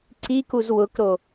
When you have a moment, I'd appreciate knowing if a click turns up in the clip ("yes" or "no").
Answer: yes